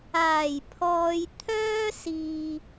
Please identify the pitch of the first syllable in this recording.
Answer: low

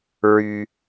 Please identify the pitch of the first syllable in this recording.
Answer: low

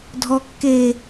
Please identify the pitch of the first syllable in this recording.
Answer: low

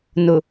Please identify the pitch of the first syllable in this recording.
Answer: low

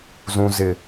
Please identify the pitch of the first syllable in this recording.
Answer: high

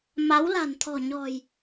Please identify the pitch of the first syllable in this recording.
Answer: rising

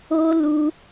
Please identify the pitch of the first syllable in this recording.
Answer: high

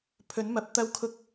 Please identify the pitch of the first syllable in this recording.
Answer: rising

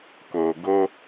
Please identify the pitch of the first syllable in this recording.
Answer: low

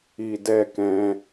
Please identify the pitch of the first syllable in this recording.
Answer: low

